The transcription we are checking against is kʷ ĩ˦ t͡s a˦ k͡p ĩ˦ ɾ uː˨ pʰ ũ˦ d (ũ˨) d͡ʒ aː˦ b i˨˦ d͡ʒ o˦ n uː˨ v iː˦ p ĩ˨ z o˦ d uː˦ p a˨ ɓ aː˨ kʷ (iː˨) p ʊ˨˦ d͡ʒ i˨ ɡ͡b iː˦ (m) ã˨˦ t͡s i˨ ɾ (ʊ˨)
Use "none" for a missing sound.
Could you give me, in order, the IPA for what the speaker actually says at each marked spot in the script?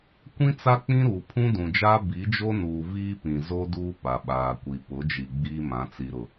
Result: ũ˨, i˨, m, ʊ˨

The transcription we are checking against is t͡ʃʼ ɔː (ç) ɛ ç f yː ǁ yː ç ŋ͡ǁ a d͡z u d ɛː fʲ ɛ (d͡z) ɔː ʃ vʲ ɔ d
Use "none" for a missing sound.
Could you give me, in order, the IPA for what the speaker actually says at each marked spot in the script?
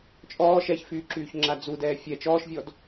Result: ʃ, t͡ʃ

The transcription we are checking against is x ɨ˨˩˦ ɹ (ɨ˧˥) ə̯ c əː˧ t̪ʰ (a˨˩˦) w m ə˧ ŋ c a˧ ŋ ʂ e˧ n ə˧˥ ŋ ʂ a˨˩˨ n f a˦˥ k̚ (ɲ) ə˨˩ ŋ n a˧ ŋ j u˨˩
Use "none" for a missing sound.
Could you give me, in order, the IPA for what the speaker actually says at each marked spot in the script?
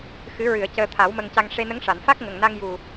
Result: ɨ˨˩˨, a˨˩˦, ŋ

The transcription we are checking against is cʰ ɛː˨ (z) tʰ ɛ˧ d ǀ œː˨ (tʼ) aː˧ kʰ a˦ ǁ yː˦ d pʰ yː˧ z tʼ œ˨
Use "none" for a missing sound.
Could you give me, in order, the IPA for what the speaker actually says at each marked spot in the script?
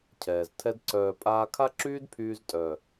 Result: z, pʼ

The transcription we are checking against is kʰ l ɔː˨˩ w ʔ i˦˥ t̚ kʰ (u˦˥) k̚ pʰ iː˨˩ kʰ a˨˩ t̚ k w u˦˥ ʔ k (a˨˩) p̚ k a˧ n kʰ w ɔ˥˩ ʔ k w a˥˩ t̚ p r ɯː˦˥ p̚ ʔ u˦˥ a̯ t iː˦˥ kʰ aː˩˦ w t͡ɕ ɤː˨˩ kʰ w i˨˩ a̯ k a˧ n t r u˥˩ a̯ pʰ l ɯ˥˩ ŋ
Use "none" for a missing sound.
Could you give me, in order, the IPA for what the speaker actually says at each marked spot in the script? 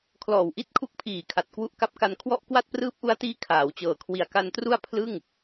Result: u˦˥, a˦˥

